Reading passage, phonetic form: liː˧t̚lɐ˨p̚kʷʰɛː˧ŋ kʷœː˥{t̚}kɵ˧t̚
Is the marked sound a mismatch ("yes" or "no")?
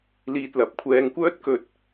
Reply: no